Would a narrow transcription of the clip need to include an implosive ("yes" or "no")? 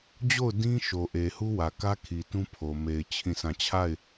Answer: no